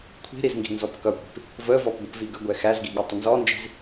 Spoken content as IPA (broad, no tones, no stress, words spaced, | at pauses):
kʷʰi̤ɾiz ŋɡi̤nzɔpkʌkʷi̤p | vəvɔp ɡʷəpviɡəɡʷɛ xæzɡi ɠətˤənzɔnd͡ʒi̤z